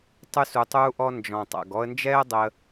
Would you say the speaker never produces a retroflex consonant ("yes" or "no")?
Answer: yes